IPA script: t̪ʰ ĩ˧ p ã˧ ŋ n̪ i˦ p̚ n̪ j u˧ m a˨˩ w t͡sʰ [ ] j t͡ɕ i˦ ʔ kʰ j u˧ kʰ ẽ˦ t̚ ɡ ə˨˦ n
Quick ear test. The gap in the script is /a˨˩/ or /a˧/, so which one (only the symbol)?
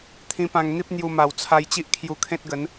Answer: a˧